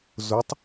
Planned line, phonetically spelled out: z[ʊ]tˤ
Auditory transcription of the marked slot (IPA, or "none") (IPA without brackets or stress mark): ʊ